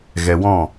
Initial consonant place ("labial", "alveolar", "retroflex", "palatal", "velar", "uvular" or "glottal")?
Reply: velar